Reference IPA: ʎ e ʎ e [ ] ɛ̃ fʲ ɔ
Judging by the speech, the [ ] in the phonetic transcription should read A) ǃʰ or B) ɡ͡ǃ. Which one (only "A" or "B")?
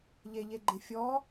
B